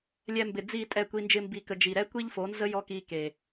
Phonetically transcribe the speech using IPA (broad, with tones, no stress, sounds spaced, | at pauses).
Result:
lʲ ɛ˧ m b ɪ˨ d͡z i˦˨ tʼ ɛ˦˨ kʷ i˧ n d͡ʒ ɪ˦ m b i˧ k ə˧ d͡ʒ i˨ ɾ ɛ˦ kʷ i˦ ʎ f o˨˦ n z ə˦ j ɔ˦ k i˧ k e˨